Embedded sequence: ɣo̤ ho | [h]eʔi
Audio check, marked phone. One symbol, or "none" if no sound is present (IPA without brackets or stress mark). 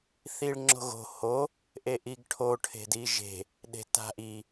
ʔ